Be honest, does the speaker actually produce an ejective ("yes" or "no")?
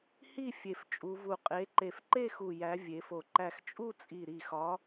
yes